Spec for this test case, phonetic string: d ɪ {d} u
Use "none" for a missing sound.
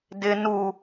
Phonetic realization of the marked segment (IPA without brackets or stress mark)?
n